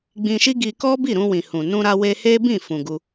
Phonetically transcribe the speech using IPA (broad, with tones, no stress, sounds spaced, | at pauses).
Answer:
ɡ͡b ĩ˧ ʃ i˦ ɡ i˧ k ɔ˦ b i˦˨ ɾ ũ˧ w ĩ˨ h ũ˨ n ũ˧ ɾ a˧ w e˧ h e˦ b ĩ˦˨ f ũ˨ ɡ u˧